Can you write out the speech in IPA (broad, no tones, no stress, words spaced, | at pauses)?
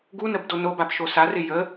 ɡunəb donobap ʃosarɪ jə